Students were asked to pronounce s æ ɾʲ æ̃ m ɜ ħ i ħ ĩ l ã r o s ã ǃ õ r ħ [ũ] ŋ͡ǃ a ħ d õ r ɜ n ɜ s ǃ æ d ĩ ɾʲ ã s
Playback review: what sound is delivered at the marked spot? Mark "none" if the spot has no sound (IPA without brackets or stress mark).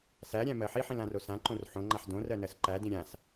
õ